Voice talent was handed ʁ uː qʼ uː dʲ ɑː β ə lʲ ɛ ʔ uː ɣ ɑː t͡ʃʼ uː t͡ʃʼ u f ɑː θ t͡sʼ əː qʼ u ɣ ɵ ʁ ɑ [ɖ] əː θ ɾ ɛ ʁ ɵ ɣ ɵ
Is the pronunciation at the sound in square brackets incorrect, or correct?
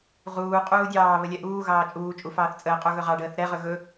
correct